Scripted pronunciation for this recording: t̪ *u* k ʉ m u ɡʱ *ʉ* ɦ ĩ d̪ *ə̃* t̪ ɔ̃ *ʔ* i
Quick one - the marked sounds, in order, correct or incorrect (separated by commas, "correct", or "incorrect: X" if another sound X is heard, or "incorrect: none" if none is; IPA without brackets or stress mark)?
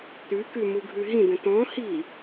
incorrect: ʉ, correct, correct, incorrect: h